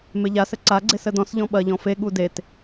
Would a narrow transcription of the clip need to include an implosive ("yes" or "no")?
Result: yes